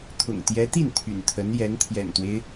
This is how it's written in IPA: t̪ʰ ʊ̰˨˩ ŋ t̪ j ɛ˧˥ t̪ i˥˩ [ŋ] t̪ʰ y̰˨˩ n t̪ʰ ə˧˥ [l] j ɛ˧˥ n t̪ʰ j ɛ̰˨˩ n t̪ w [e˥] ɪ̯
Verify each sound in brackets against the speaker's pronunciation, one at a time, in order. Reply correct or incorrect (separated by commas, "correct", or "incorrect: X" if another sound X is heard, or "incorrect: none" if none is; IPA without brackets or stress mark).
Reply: incorrect: n, incorrect: n, incorrect: e˦